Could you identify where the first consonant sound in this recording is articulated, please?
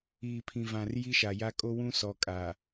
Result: labial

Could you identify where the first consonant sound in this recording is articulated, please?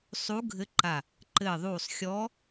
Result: alveolar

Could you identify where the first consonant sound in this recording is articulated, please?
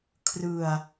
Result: velar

